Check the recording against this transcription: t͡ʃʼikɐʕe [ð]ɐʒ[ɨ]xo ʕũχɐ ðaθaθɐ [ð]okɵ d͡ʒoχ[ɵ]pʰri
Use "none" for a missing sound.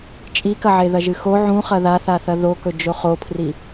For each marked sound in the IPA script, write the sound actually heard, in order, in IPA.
ð, ɨ, ð, o

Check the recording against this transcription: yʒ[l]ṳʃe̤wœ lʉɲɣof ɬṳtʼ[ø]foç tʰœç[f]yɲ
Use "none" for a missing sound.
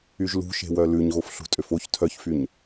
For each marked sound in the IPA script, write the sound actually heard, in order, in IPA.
l, ø, f

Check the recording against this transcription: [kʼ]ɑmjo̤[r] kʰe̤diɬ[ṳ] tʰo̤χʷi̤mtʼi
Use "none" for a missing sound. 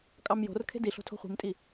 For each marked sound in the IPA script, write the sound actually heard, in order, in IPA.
kʼ, r, o̤

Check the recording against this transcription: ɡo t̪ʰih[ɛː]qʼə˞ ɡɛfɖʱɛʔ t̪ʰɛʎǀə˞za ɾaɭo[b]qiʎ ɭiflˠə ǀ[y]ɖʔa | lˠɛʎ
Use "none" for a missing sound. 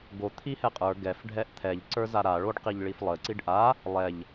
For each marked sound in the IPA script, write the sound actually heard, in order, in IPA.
ɛ, ɖ, i

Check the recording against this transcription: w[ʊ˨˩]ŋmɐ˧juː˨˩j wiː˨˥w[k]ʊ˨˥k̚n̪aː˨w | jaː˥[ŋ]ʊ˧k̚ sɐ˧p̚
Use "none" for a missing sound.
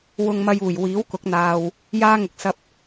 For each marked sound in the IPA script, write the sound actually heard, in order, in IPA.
ʊ˧, k, ŋ

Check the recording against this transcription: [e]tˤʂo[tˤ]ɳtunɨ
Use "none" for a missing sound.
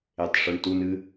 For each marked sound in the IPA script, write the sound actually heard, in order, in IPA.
e, none

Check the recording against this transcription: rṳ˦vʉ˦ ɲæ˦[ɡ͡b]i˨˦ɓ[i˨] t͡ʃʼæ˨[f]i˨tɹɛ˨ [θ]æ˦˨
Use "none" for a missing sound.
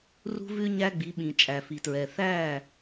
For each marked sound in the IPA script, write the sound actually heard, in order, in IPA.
ɡ͡b, ĩ˨, f, θ

